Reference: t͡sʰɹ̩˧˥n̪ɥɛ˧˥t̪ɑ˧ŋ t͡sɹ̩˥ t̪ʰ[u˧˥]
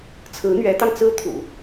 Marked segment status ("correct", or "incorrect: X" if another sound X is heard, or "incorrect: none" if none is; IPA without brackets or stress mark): incorrect: ṵ˨˩˦